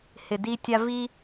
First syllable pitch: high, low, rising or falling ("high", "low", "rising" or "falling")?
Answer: low